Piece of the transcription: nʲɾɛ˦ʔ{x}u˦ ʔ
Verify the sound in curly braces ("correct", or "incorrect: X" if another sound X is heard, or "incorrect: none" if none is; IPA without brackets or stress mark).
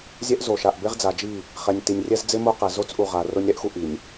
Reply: correct